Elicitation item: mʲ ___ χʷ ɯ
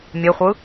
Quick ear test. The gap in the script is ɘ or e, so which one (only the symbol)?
e